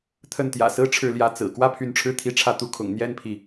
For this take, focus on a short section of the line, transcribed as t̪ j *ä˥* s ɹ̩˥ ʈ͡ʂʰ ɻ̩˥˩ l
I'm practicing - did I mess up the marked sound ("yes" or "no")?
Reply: yes